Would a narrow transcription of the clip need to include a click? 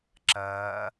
yes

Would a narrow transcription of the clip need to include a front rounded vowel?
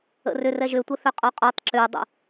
yes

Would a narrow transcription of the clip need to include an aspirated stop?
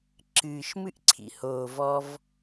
yes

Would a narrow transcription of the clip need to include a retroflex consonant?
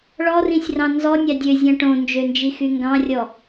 yes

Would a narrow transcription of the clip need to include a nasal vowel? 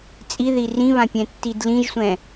yes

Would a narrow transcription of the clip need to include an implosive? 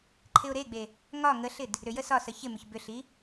no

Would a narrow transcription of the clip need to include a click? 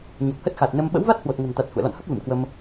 no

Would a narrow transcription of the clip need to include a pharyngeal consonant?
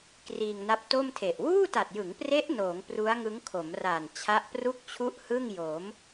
no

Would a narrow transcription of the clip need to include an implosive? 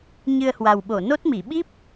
yes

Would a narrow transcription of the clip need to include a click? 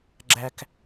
yes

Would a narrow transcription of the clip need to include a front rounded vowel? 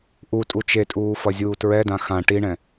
no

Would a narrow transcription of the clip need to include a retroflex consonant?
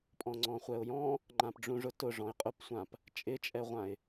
yes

